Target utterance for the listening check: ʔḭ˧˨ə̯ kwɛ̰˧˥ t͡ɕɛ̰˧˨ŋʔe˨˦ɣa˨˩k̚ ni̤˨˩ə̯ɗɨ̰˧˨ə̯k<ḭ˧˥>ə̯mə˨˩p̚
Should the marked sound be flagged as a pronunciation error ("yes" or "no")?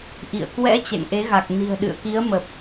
yes